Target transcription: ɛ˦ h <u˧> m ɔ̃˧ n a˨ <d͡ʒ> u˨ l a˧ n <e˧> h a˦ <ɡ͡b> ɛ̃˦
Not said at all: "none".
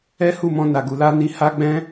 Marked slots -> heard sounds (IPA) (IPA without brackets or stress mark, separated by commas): u˦˨, ɡ, i˧, ɡ͡b